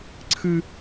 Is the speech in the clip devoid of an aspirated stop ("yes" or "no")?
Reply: no